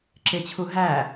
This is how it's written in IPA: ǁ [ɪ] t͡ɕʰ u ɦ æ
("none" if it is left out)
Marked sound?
ɪ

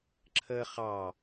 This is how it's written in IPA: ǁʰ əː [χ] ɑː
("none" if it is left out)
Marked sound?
χ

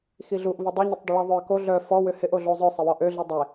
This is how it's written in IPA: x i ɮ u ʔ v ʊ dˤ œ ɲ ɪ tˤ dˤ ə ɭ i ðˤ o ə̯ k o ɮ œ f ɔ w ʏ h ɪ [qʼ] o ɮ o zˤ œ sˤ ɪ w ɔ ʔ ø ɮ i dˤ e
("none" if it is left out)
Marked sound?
ʔ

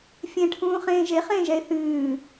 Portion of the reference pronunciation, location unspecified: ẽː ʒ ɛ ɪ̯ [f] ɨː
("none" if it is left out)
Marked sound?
θ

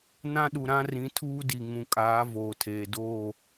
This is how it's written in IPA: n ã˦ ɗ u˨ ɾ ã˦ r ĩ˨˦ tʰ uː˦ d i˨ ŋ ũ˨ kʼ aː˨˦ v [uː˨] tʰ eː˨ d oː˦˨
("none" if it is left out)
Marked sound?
oː˨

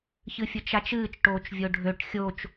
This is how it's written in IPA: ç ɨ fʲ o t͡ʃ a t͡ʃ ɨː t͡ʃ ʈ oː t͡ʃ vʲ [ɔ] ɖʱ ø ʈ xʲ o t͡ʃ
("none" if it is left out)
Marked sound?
o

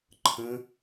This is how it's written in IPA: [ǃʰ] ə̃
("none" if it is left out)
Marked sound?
ǃʰ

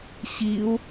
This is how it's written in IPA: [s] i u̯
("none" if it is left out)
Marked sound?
ɕ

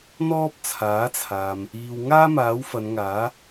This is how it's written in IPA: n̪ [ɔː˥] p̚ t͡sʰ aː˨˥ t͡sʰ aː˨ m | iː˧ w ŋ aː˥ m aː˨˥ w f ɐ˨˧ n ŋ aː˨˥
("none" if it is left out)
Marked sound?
ɔː˥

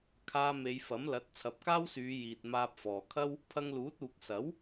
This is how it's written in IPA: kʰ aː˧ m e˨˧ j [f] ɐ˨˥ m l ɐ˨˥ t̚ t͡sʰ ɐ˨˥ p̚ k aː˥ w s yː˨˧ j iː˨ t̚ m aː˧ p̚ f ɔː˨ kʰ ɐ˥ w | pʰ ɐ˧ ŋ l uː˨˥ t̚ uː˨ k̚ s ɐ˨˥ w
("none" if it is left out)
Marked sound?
f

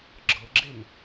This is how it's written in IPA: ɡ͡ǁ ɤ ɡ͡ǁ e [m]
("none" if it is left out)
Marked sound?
m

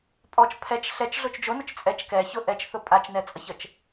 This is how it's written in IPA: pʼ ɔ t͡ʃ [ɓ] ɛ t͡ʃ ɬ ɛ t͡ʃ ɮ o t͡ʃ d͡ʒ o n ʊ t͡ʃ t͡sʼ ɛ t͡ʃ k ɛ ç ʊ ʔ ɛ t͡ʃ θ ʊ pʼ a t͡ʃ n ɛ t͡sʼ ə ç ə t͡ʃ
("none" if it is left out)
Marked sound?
pʰ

